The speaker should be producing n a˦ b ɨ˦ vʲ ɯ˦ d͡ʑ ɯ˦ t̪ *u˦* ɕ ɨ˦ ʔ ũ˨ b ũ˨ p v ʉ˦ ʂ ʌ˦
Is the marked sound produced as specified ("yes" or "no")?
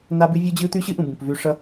no